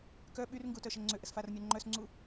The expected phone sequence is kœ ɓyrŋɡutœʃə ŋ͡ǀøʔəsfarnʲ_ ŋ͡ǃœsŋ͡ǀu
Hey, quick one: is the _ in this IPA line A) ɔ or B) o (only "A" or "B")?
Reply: A